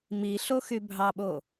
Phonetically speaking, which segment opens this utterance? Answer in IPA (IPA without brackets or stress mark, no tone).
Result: m